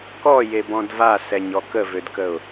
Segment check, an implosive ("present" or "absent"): absent